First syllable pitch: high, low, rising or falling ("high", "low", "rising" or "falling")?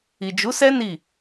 low